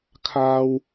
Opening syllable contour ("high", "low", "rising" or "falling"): low